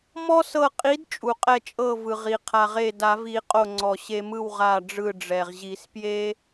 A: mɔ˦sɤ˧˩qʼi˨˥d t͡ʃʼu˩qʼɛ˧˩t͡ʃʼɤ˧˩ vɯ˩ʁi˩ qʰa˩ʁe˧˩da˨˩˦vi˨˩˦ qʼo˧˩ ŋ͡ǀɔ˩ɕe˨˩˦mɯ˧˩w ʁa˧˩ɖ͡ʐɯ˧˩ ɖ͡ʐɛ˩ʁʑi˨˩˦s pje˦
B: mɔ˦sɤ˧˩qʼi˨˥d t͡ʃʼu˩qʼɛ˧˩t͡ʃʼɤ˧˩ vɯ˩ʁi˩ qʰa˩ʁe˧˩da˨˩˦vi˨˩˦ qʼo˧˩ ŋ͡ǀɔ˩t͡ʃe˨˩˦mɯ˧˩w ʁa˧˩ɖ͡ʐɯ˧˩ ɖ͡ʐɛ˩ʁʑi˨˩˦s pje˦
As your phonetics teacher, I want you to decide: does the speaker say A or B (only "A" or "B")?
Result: A